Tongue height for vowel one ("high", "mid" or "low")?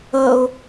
mid